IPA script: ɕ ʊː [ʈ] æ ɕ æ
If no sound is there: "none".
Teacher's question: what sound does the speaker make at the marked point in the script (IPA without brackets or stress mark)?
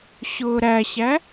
ɾ